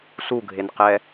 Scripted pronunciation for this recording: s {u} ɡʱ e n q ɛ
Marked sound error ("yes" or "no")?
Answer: no